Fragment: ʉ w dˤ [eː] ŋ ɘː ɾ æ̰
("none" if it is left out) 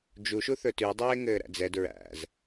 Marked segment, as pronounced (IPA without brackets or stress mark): eː